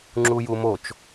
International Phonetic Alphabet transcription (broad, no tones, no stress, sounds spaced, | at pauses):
ŋ͡ǁ u j u m o t͡ʃ